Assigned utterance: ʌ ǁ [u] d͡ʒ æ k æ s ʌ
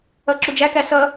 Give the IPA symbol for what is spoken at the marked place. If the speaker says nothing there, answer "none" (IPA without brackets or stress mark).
u